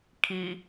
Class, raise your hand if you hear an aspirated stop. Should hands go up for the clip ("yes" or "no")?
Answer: yes